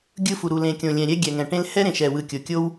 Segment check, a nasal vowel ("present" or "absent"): present